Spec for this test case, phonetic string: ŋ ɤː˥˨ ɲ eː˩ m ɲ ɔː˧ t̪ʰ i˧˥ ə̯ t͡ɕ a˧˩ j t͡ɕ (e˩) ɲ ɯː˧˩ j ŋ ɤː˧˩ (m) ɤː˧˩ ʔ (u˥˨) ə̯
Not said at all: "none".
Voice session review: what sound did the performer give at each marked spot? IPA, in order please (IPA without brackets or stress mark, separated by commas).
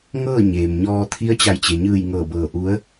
e˩, b, u˧˥